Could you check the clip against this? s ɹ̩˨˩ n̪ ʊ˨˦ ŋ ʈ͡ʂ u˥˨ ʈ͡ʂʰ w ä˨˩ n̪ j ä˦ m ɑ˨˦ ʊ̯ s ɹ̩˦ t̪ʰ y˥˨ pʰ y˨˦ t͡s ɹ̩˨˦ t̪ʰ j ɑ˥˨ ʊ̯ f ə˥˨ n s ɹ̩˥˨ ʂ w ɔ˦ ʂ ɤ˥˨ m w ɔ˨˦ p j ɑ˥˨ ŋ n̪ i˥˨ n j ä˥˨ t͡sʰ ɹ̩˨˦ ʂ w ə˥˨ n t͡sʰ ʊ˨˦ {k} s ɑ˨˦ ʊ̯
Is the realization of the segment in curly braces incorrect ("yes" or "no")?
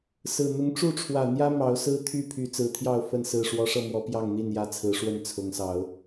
yes